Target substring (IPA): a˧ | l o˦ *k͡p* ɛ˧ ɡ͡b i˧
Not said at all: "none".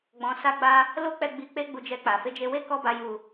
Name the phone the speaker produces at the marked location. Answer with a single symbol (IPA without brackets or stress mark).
k͡p